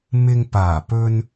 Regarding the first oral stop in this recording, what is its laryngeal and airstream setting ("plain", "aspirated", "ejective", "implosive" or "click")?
plain